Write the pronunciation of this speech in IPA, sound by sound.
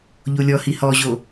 ʎ o lʲ ɔ h i h ɔ ʑ o

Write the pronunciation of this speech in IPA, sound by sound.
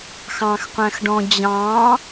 x ɑ̃ x qʷ æ̃ x ɖ ɔ̃ d͡ʑ ɑ̃

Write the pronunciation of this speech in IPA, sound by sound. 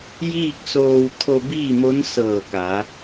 j iː˥˨ k̚ s oː˧ w t̪ʰ o˧ b iː˥˨ m o˧˥ n s ɤː˧˩ k a˩˧

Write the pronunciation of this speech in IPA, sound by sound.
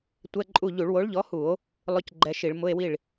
tʷ ɛ˧˥˧ ǃʼ u˥˩ ʎ u˧˩˧ ɭ w o˨˥ ɭ ʎ ɔ˨˥ h u˧˩˧ o̯ | lˠ ʊ˧˥˧ c ɡ͡ǃ ɛ˧ ʃ i˧˩˧ ɭ m ʊ˧˥˧ e̯ w i˥˩ ɭ

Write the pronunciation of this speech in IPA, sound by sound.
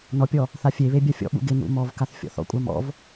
n ɔ pʲ ɔ | θ a fʲ e β e bʲ a fʲ ɔ̰ ɓ ṵ ɡ ɪ n ṵ m ɔ v k a θ fʲ ɔ̰ θ ɔ̰ kʷʼ ɑ m ɔ̰ v

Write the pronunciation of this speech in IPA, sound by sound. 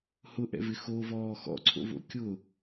h ʊ ʔ ɛ̰ v ɪ x o v ɔː x ɔ̰ ǀʰ o̰ v o̰ kʲ ʊ

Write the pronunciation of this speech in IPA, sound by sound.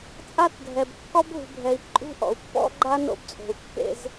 t͡sʼ a˦ t dʱ ɛ˨ b kː ɔ˦ b ɦ ṳ˨ bʱ ɛ˨ i̯ ǃʼ ṳ˦ ʔ ɔ̰˨ u̯ pː ɔ̰˦ ɡ͡ǃ a˦ n o̰˦ b t͡sʼ o̤˨ u̯ kː ḛ˦ z

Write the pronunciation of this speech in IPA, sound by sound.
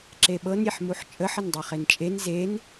ǁ e ɓ ɤ n ɾʲ e ħ m u ħ t͡ʃʼ ə ħ ə n dˤ i χ e n t͡ʃʼ e n z e n

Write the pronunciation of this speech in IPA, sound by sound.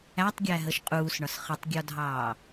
æ tˤ ɡʲ æ ɦ ə ʃ qʼ uː s ɳ ɒ s χ ə tˤ ɡʲ ɔ dʱ ɑː

